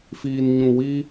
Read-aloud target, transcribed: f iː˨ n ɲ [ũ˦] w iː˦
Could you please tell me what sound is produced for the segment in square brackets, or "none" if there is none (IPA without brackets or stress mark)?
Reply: ũ˨